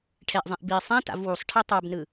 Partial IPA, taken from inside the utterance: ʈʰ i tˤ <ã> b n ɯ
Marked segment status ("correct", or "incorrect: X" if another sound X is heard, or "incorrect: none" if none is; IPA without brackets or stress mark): incorrect: a